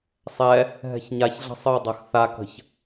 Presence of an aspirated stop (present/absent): absent